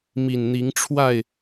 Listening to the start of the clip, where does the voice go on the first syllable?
low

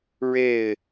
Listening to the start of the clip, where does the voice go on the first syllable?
falling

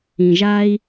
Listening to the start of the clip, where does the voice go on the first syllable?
low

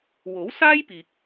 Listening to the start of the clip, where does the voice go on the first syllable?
rising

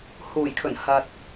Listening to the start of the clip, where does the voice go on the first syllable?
low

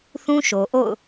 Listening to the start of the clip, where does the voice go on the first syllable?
high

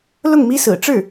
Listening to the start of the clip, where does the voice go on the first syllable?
falling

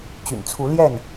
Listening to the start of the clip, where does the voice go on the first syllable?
low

